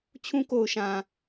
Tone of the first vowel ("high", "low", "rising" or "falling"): high